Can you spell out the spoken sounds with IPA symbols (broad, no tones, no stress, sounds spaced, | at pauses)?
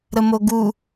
ɾ ə m o ɡ u